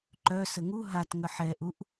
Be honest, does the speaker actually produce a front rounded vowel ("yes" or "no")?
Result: yes